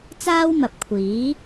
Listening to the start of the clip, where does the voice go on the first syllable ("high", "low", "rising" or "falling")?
high